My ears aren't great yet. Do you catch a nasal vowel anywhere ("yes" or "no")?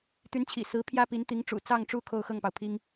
no